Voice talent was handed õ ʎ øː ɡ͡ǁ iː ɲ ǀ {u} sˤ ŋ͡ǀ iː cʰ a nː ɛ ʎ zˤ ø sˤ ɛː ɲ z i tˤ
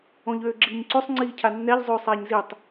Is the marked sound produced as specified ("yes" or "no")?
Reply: no